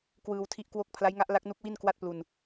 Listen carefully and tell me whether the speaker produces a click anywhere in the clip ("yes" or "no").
no